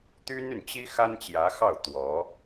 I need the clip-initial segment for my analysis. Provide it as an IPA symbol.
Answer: t̪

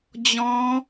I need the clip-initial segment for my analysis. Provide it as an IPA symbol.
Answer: d͡ʑ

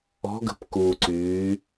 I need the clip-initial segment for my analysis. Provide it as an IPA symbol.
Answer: ɔ̤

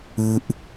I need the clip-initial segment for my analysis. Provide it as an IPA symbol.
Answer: ɨ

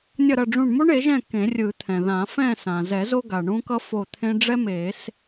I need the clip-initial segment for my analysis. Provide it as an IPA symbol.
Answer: nʲ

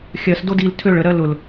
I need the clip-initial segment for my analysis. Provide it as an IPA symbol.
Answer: xʲ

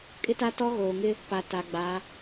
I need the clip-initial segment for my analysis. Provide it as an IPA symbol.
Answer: kʼ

